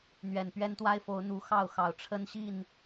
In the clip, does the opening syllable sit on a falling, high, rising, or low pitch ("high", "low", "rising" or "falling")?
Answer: low